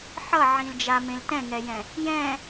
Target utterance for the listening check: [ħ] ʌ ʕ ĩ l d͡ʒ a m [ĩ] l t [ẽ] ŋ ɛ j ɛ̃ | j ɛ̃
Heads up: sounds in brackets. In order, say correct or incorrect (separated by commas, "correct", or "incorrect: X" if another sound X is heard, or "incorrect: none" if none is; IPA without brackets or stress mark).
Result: correct, incorrect: ẽ, incorrect: ɛ̃